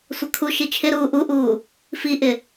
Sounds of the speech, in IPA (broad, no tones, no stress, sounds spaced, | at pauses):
sʷ ʌ kʰ u ʃ i t͡ʃʰ ɪ ɾ uː ʔ u ʔ uː | f i ʔ ɪ